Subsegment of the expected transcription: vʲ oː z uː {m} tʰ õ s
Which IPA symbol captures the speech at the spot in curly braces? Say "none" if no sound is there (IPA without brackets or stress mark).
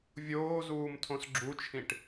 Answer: m